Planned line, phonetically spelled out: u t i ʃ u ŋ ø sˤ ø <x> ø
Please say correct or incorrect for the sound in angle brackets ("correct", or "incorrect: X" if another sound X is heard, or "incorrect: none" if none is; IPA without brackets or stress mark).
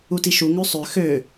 correct